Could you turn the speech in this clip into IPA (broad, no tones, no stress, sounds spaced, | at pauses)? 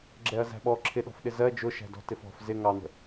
ɡ͡ǁ ɛ ɐ̯ z æ̤ ɓ ɔ ǁʰ ɪ ɗ ɔ̤ f ɗ ɪ z ɜ d͡ʒ ʊ ʃ æ̤ d ɔ̤ t ɪ f ɔ̤ f z ɪ ŋ ɑ n̪ ə̤